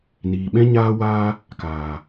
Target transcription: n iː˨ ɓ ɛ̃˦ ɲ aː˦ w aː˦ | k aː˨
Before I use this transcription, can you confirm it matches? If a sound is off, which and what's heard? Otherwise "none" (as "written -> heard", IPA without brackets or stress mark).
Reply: none